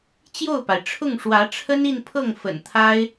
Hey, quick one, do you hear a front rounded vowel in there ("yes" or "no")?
no